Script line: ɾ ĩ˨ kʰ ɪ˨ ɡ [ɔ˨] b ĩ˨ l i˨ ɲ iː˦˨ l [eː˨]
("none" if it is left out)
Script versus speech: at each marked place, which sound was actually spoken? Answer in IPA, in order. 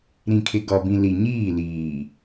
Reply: ɔ˨, iː˨

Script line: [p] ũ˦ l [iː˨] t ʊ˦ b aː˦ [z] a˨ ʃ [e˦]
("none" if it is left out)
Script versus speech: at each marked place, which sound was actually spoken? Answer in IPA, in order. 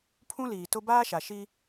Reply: pʰ, iː˨, ʃ, i˦

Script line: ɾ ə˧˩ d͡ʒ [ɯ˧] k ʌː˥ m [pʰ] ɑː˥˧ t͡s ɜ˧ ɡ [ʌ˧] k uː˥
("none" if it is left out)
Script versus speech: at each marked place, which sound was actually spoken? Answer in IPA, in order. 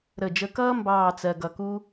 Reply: ə˧, b, ʌ˧

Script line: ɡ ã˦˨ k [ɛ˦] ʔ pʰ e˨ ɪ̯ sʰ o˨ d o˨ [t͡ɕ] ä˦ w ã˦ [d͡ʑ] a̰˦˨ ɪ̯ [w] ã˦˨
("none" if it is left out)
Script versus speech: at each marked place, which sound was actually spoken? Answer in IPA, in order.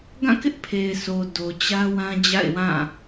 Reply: ɪ˦, t͡ɕ, d͡ʑ, w

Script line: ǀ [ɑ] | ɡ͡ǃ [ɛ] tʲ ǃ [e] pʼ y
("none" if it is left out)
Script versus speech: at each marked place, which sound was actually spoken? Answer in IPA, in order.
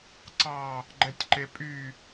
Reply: ɑ, ɛ, e

